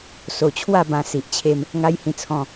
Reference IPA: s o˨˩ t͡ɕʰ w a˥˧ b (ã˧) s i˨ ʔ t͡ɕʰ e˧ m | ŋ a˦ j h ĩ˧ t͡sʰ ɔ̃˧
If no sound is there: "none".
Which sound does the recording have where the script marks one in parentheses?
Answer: ã˧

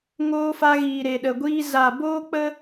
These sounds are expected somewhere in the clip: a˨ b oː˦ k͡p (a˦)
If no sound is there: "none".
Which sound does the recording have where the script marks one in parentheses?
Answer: ə˦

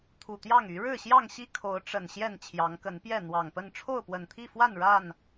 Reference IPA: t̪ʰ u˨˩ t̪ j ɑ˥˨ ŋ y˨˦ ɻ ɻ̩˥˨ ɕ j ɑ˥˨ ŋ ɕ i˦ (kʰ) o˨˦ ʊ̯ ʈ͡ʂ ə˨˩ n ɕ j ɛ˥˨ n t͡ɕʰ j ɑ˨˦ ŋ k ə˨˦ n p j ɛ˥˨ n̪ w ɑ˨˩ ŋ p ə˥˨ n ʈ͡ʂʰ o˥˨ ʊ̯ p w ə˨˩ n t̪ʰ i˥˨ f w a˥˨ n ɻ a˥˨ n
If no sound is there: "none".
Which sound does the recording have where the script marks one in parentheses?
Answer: kʰ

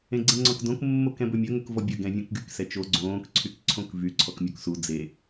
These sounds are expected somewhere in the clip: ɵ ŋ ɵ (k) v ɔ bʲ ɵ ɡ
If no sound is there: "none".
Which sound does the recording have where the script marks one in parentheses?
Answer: k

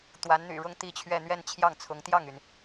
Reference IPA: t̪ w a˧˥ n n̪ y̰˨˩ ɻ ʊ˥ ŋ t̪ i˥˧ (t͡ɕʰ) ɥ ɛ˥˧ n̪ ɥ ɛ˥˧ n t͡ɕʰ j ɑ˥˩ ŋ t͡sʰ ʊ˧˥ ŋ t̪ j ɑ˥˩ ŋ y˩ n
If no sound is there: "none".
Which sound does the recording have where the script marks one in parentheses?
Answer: t͡ɕʰ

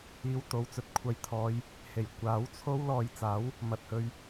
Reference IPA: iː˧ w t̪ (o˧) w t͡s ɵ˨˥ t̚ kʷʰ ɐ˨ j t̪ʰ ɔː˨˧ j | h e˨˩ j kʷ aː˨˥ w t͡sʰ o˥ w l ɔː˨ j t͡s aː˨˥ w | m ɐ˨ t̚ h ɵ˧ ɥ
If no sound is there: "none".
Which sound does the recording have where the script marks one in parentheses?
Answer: o˨˧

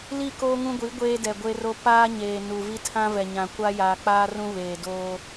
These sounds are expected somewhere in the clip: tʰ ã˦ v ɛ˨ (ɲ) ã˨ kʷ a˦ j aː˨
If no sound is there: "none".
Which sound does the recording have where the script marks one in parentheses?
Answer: ɲ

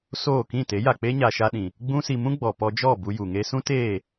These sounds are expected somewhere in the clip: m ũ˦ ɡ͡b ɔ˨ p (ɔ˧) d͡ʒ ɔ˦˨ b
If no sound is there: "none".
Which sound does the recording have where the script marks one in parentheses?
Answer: ɔ˧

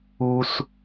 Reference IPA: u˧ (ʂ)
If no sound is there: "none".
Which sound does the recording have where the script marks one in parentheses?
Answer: s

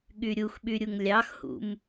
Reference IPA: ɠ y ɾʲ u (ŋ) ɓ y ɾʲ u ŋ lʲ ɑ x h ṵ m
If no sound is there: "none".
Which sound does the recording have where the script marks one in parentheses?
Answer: x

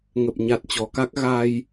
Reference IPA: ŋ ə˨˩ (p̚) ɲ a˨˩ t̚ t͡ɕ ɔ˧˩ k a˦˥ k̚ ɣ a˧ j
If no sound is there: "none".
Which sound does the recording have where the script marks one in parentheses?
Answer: p̚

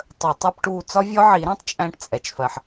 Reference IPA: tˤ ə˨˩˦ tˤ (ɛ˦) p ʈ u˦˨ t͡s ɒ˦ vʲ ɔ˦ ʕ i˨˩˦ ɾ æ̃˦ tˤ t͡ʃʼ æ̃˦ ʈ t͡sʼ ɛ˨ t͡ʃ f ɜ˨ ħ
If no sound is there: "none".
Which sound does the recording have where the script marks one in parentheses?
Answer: ɛ˦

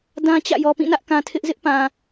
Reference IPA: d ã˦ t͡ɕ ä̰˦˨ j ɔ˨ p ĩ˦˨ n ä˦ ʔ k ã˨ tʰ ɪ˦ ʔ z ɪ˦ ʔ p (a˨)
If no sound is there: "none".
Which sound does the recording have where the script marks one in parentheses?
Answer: ã˨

